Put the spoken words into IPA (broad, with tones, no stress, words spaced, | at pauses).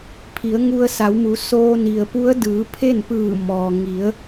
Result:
pʰi˩˧ə̯ŋu˧ə̯sa˩˧wmu˩˧ soː˧ni˩ə̯pu˧˥ə̯ dɯː˩˧ pʰe˥˨npɯː˧˩ mɔː˩ŋi˩˧ə̯